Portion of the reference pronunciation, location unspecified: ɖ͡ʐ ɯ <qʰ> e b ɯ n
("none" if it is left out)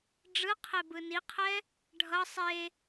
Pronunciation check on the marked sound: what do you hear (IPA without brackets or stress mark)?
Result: qʰ